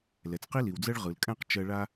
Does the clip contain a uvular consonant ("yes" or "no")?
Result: yes